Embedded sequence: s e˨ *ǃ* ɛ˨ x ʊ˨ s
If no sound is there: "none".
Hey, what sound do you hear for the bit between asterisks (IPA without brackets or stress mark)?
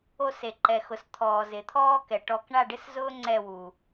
ǃ